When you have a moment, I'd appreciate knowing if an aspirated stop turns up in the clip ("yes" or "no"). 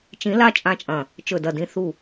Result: no